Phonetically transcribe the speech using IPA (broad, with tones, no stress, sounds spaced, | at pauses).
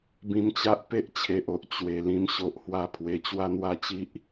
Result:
b ĩ˧ m t͡ɕ a˦ ʔ p e˦ ʔ t͡ɕʰ e˨ ʔ o˨ ʔ t͡ɕ w e˨˩ l ĩ˧ m ɕ o˨ ʔ h w a˦ pʰ w e˧ t͡ɕ w a˦ n̪ w a˥˧ t͡ɕ i˦ ʔ